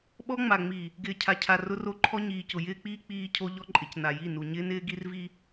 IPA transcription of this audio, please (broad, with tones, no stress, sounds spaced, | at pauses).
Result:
ɓ ɔ˦ ŋ͡m a˨ ŋ͡m i˨ | ɡ ɪː˨ cʰ a˨ cʰ a˨ r ʊ˦ r o˦ ǃʰ ɔ˦ ɲ iː˨ c ʊ˨ j ɪː˦ k͡p iː˦ k͡p iː˦ cʰ o˦ ʎ ɔ˦ ǃʼ ɪ˨ c n a˨ j i˦˨ n u˨ ɲ ɪː˦ n ɪː˦ ɡ i˦ r v i˦